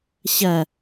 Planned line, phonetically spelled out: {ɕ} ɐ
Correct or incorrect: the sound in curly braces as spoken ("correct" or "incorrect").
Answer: correct